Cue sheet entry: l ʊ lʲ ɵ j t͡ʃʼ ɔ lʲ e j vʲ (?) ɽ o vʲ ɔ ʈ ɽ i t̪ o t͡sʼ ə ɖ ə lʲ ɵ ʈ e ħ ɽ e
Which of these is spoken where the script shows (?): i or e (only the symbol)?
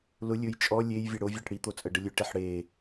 e